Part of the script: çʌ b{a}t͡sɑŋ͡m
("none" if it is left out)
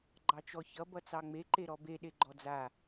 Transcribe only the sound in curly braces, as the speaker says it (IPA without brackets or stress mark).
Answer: ʌ